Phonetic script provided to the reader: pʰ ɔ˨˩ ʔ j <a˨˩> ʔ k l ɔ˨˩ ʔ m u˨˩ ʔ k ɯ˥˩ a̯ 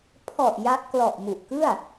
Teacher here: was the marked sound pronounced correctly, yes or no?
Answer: no